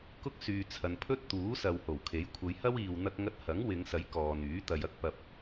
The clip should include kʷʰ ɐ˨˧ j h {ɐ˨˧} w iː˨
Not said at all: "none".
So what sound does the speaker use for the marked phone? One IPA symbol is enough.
ɐ˥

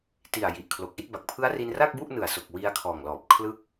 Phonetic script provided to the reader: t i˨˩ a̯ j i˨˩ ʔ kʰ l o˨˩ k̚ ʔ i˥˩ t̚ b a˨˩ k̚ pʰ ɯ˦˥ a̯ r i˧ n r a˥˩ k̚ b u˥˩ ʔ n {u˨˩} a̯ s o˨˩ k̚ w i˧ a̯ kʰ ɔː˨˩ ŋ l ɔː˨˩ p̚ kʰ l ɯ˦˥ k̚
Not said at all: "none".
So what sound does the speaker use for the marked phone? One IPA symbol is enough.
ɯ˨˩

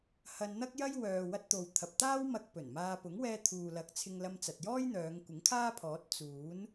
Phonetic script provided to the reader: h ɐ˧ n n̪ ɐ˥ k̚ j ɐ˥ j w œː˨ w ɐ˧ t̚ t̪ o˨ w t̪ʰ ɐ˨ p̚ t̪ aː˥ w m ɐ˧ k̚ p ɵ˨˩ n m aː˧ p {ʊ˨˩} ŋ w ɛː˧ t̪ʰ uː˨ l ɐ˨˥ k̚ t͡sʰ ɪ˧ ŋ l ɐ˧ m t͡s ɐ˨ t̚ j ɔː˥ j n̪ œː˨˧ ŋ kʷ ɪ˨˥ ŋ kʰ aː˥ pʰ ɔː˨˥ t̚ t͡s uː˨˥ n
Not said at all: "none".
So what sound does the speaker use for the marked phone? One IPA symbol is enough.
ʊ˨˥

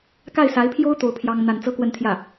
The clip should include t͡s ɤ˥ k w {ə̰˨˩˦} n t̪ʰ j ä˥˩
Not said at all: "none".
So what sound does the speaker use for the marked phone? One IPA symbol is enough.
ə˥˧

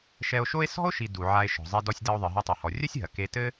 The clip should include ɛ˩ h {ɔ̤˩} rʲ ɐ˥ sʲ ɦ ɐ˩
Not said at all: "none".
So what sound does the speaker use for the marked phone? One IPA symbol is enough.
ɔ˩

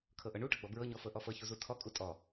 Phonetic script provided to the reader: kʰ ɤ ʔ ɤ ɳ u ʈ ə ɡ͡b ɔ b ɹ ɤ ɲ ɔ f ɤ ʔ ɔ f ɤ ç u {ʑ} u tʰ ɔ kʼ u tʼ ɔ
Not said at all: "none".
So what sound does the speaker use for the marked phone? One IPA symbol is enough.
z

